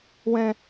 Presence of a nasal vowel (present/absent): present